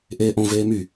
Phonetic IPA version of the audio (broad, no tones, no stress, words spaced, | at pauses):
ʔeːʔõ veːmy